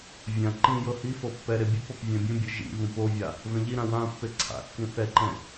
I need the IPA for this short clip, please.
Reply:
vʲã ǃĩjɤ hifɤ pːɛɾe bʲɯpɔp vʲɛ̃bʲũbʲɯ ʒḭvũp ovʲa | vɛ̃ʎiɾã wã pːeǀʰa̰kːĩ θɛǃɛ̃

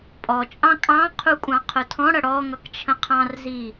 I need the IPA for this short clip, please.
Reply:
pʼɔt͡ʃʼɑ̃ kʼɑ̃qʰu kʷʼɑ̃qʰʊtʰɔ̃ɽʌ ɽɔŋʌk t͡ʃʰə̃qʰɑ̃rzi

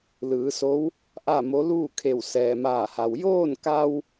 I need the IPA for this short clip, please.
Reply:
lɯː˩˧so˧˥w | ʔa˥˨mo˧˥ luː˥˨kʰe˧˩w sɛː˩maː˧˩ha˩w joː˥˨nka˧w

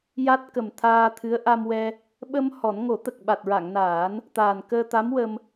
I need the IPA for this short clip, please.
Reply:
ja˦˥t̚kə˨˩mt̪ʰaː˧t̪ʰɨ˧˥ə̯ ʔa˧mwɛ˧ | ɓə˧m hɔ˨˩˦n ŋo˨˩˦ t̪ə˨˩k̚ɓa˨˩t̚ɹa˨˩˨ŋnaː˨˩˦n | t̪aː˨˩nkəː˧t̪a˧˥mwə˧m

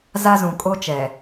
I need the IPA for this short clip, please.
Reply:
za˦zũ˨ kʼo˦t͡ʃɛ˨

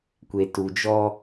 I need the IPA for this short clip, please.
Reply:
kʷe˨tu˨d͡ʒɔ˦

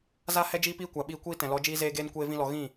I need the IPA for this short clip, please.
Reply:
za˦hɛ˦ d͡ʒiː˦piː˦kʷa˨ɓiː˧ kʷiː˦tɛ̃˨lɔ˨˦ d͡ʒiː˦zeː˦ɡeː˦n kʷeː˦vĩ˦lɔ˧ ɣĩ˦˨

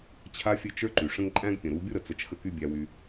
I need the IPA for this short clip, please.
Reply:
t͡ɕʰa˦fʲɘ˦˨t͡ʃ ə˞˦ǃy˨ʂə̃˦ŋ ǃʼæ̃˦ɡpʲə̃˨ɾu˨˦ bʲo˦ɾə˨t͡sə˨˦t͡ʃ xə˦ky˦bʲæ˧wy˧

